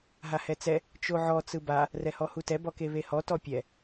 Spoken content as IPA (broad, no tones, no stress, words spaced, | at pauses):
ɦahɛt͡sɛ | t͡ʃoʕɔ t͡sɯba | rɛhɔhutɛ bɔkeβehɔ tɔpʲɛ